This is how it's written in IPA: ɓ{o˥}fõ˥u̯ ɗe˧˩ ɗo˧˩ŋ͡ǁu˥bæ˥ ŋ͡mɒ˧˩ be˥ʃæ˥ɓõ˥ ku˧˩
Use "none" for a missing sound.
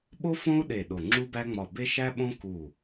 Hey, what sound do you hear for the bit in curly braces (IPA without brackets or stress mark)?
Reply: o˥